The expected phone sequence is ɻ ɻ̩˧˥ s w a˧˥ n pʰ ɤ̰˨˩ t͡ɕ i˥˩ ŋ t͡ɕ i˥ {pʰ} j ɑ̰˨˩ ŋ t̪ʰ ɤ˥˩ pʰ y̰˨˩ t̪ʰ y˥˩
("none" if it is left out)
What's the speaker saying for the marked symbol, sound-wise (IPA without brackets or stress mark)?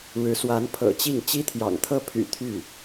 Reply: t̪ʰ